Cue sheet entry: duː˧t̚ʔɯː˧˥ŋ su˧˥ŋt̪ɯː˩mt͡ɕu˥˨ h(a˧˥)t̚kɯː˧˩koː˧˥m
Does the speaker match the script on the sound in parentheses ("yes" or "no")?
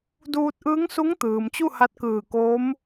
yes